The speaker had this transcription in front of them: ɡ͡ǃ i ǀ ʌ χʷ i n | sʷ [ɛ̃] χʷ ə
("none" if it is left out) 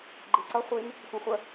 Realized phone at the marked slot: ɛ̃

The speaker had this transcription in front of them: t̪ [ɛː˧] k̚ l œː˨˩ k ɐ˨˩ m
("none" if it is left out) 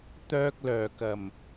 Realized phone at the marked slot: œː˧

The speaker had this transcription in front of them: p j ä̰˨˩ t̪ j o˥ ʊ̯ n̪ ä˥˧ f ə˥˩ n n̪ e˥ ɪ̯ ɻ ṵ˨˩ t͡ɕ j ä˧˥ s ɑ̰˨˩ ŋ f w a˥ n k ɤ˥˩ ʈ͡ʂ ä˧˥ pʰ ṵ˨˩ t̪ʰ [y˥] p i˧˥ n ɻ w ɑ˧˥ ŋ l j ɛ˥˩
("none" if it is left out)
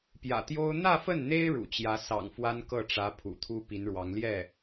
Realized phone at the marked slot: u˥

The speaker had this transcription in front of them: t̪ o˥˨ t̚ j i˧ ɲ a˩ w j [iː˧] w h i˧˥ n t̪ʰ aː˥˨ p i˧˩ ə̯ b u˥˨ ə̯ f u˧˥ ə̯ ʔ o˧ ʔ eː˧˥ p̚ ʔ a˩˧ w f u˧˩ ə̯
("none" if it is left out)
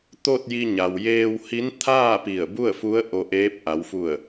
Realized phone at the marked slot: eː˧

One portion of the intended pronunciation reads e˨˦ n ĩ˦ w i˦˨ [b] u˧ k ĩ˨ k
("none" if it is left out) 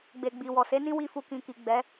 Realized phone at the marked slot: f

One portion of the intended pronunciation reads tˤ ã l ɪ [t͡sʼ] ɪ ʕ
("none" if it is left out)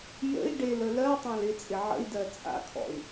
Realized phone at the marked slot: t͡sʼ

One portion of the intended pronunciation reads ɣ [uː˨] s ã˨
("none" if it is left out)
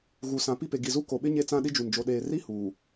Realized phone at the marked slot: u˨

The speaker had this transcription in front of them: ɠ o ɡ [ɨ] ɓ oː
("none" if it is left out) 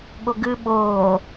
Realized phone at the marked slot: ɨ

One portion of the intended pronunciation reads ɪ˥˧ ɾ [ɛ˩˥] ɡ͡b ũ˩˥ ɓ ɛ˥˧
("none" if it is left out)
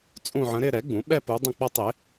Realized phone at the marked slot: ɛ˩˥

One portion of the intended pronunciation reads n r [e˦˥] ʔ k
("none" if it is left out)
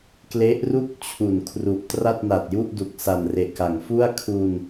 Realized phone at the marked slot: e˨˩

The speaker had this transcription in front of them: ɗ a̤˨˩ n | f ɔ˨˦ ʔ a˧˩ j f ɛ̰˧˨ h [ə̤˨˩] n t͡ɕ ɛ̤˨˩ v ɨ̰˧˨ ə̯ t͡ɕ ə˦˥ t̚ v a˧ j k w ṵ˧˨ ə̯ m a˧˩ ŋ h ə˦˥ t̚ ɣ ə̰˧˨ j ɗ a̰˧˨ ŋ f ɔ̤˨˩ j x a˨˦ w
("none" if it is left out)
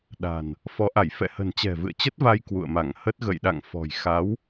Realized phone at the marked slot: ə̤˨˩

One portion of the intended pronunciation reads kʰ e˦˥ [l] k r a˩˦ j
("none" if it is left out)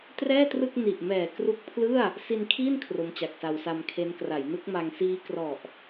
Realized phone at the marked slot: n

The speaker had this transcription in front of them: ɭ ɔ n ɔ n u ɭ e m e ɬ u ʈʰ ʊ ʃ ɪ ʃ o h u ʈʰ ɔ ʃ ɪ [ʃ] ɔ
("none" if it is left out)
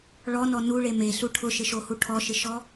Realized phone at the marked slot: ʃ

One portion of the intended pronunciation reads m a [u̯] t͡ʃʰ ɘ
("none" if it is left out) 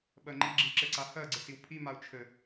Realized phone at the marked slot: u̯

